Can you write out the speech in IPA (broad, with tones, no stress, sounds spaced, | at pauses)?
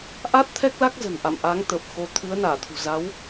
ʔ a˦˥ t̚ t̪ʰ ɛ˦˥ k̚ l a˦˥ k̚ z ə̤˨˩ n ʔ a̰˧˨ m ʔ a˨˦ ŋ t̪ ə˨˩ p̚ x o˨˦ t̪ʰ ɨ˨˦ ə̯ n aː˧˩ t̪ʰ ṳ˨˩ z a˨˦ w